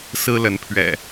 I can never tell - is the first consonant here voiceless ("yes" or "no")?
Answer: yes